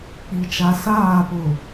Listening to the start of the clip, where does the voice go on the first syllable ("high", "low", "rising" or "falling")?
low